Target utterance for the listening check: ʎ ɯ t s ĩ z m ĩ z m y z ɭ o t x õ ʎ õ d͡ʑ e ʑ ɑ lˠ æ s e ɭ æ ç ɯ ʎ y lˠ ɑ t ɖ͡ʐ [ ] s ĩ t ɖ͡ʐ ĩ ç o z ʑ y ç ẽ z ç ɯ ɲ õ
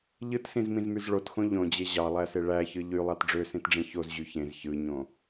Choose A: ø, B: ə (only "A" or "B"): A